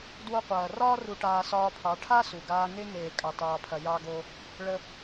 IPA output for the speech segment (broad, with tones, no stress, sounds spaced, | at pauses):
d w o˧ qʷ ɐː˨ r ɒː˦ r u˧ ʈ aː˧ s ɒː˧ pʰ ɑ˨˦ ʈʰ a˦ s u˨ ɡ aː˧ ŋ e˧ ŋ eː˨ kʼ ɑ˧ t ɑː˧ pʰ ɐ˧ j ɑ˧ ɡ o˧ | ɭ ə˦